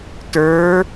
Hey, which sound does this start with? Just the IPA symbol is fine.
t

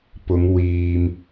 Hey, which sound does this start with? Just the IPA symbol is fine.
p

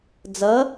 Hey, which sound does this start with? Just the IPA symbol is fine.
d͡z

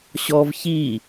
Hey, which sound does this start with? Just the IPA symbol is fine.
ɕ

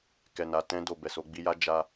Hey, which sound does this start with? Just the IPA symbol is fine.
k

